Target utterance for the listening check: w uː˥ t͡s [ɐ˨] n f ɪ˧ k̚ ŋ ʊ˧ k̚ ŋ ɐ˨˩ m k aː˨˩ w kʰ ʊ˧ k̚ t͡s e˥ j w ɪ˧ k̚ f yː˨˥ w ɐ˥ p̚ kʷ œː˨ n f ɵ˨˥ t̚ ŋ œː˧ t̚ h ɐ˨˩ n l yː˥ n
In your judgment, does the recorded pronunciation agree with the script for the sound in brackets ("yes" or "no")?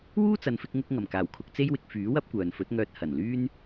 yes